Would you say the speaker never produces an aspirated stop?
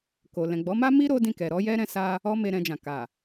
yes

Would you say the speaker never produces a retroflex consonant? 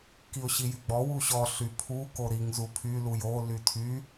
yes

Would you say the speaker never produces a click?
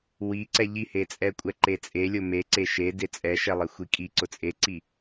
no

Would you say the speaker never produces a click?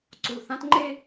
no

